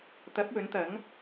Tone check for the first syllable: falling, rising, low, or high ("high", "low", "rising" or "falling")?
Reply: rising